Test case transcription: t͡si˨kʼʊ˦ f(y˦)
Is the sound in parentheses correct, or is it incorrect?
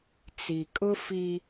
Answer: incorrect: i˦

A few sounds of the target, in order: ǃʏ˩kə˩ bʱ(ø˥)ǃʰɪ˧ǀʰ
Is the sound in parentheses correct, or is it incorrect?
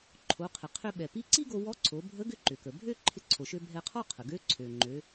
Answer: correct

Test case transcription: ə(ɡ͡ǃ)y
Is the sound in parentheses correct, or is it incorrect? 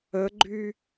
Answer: correct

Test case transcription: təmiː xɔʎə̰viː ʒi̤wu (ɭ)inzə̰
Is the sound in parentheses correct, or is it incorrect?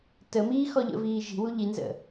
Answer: incorrect: ʎ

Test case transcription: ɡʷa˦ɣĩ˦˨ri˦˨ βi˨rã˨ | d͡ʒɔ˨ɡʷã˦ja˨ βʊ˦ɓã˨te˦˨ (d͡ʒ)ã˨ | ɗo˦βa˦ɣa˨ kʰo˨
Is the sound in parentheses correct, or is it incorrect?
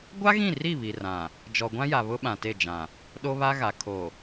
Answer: correct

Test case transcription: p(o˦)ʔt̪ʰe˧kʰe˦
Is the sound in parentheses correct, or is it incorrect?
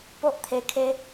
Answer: correct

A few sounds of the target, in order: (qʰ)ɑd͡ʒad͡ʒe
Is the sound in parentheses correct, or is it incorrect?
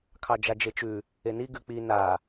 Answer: incorrect: kʰ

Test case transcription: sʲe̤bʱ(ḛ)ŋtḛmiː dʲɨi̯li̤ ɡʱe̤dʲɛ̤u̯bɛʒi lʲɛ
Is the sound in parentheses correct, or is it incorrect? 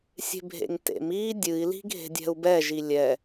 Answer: correct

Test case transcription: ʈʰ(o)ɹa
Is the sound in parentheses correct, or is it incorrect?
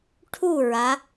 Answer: incorrect: u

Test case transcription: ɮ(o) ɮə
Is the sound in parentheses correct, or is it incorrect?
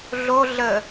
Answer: correct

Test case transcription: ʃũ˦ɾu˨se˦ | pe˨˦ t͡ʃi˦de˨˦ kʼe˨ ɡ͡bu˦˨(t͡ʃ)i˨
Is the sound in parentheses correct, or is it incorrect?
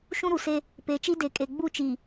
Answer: correct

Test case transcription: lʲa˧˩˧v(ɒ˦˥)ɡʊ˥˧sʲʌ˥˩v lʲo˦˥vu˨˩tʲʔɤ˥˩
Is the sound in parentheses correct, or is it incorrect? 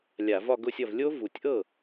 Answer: incorrect: ɒ˥˧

